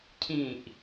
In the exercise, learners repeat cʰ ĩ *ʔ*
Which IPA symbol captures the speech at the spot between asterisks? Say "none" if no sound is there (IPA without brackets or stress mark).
ʔ